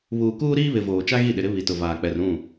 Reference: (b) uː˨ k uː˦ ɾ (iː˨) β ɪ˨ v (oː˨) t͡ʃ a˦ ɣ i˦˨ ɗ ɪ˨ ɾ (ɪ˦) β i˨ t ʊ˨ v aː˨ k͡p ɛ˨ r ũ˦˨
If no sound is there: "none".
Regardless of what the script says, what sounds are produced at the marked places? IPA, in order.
β, iː˦, oː˨, ɪ˦

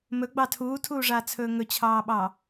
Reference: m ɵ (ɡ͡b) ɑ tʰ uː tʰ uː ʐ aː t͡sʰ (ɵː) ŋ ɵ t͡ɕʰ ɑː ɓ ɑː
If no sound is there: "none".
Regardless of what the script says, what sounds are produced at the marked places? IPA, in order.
ɡ͡b, ɵː

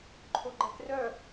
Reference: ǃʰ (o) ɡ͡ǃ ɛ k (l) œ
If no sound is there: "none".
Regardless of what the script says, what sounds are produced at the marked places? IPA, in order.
o, r

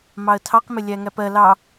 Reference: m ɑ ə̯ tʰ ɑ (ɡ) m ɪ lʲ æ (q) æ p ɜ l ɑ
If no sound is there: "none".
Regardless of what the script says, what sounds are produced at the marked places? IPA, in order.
q, ŋ

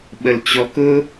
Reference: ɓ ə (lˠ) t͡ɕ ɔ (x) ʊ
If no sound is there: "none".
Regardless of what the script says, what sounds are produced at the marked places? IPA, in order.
l, k

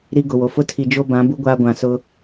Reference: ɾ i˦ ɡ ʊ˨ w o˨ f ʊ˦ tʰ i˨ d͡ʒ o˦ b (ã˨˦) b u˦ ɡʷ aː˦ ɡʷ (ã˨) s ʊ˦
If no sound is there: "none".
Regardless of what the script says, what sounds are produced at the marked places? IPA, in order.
ã˨˦, ã˨

